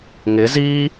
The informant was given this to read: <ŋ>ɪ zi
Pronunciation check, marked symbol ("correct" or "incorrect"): correct